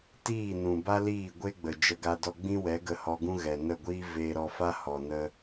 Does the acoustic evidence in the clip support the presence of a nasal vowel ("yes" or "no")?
yes